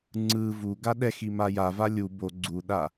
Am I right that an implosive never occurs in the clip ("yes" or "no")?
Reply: no